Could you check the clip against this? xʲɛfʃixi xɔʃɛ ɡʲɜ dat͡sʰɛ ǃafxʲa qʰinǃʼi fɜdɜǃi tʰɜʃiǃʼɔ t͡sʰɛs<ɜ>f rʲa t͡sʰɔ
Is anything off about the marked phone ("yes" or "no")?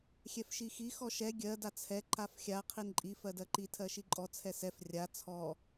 yes